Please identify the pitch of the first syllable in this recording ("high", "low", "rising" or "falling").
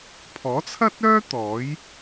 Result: rising